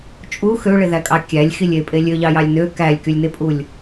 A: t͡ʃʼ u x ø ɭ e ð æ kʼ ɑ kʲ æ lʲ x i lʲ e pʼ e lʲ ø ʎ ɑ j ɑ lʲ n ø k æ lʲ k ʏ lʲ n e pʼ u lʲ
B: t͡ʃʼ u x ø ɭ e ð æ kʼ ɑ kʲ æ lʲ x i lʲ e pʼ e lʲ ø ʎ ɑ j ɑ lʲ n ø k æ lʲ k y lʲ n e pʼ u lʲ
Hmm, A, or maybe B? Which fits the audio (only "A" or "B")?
B